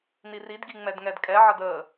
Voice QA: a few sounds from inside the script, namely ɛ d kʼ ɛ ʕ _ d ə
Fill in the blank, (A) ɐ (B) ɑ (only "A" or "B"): A